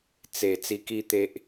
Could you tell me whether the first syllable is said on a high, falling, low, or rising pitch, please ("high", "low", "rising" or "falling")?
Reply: low